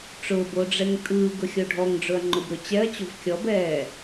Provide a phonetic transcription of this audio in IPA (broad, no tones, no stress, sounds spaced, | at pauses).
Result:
ʈ͡ʂ ʊː b o ɖ͡ʐ ɛ ŋ tʼ ɯː ɡ ʊ xʲ o ɖʱ ɔ ŋ ɖ͡ʐ ʊ ɐ̯ ŋ͡ǃ ʊ b ɾ ʊ t͡ɕ ɛ ɐ̯ t͡ɕ o v kʲ ɔ b ɛː